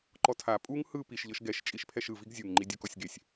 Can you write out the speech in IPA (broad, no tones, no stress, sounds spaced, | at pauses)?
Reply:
ǃ ɔ tʰ a pʼ u ŋ h ɯ p i ʃ ʎ ɤ ʃ ɡ ɛ ʃ t͡ʃʼ i ʃ pʰ ɛ ʃ ɯ v i ɡ zʲ u ŋ ŋ͡ǃ i dʲ u k ɔ sʲ ɡ e sʲ